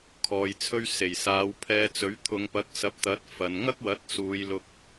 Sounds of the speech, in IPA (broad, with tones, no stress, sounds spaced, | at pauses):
kʰ ɔː˨ j t͡sʰ ɵ˧ ɥ s e˨˩ j s aː˨˧ w pʰ ɛː˧ t͡s ɵ˨˥ ɥ t̪ʰ ʊ˨˧ ŋ p ɐ˨˥ k̚ s ɐ˨˥ p̚ t̪ ɐ˨˥ t̚ f ɐ˨ n ŋ ɐ˥ k̚ w ɐ˨˥ t̚ s uː˨˧ j l ʊ˧ k̚